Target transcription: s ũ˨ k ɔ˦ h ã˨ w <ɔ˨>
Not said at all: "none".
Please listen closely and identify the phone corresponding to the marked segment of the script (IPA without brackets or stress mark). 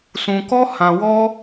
ɔ˦